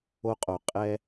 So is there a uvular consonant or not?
yes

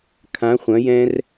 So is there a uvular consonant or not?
yes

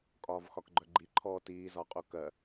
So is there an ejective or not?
yes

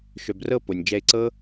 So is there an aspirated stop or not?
no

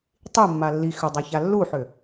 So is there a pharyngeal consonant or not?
yes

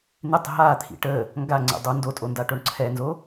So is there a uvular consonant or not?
no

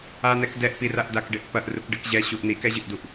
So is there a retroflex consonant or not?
yes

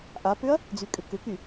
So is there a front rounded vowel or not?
yes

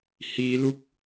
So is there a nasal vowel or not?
no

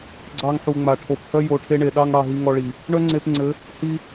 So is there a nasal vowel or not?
no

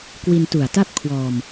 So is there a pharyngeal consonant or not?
no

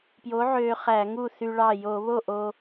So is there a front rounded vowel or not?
yes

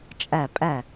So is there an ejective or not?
yes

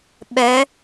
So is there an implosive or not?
yes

